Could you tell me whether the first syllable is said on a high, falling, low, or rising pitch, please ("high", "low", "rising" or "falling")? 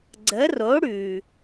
rising